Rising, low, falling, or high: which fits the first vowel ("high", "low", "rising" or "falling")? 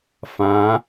rising